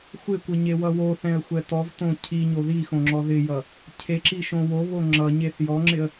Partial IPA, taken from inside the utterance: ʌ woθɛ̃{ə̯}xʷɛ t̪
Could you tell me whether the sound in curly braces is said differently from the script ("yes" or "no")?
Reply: no